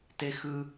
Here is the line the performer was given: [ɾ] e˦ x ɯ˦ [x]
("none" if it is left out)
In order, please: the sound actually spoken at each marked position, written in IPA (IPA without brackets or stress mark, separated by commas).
t, none